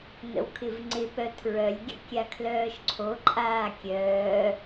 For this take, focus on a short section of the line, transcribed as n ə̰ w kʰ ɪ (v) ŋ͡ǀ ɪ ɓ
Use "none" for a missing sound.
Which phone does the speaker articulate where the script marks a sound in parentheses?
v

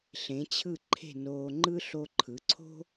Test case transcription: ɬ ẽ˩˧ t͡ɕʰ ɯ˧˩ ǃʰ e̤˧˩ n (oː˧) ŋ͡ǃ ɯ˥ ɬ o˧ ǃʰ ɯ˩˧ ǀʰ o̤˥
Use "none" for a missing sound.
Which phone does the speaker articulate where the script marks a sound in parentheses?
oː˧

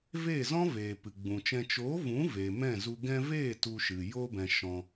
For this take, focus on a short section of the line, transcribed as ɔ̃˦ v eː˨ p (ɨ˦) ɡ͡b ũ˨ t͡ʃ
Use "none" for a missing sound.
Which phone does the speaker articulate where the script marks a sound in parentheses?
ɨ˨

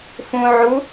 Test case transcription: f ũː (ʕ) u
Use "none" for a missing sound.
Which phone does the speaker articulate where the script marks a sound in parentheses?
ʕ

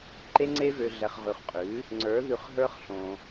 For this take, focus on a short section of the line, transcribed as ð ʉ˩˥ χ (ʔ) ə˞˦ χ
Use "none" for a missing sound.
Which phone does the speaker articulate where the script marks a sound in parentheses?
ɦ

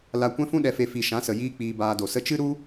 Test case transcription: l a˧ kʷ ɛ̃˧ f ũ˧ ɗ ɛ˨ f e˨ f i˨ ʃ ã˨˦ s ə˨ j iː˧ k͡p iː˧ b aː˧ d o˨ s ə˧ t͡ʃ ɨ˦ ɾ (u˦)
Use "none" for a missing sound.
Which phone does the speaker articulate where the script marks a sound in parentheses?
u˦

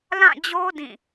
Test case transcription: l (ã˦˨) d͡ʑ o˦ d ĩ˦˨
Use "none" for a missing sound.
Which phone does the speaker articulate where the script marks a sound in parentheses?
ã˦˨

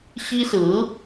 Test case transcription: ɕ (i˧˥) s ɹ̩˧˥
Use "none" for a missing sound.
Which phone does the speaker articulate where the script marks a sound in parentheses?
i˥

